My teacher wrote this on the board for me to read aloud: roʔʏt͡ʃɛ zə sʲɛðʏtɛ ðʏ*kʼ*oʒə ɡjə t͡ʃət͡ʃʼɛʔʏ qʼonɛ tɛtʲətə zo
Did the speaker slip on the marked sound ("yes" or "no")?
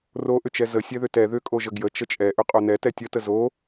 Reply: no